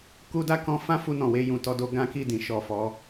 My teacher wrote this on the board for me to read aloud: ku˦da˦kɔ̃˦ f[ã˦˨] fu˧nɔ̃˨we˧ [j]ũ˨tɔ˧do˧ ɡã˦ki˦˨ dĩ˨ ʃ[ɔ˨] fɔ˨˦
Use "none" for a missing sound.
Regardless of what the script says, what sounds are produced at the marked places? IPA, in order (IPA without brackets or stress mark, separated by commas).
ã˦, j, ɔ˨